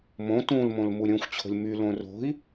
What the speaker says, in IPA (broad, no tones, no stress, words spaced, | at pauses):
mõ tũlmõl muɾʲõxʷt͡ɕʰo̤lʲ mylõ ro̤i̯